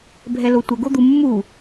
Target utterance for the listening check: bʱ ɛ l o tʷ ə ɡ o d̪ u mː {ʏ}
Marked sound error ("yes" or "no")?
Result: yes